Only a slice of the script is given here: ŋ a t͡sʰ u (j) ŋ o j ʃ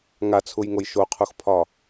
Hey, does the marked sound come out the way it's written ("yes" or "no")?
yes